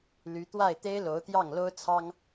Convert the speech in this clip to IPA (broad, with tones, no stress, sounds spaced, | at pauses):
l y˧˥ t̪ w a˥˩ ɪ̯ t̪ e˥ ɪ̯ l o˧˥ ʊ̯ t̪ j ɑ˥˩ ŋ l o˥ ʊ̯ t͡sʰ ɑ˥ ŋ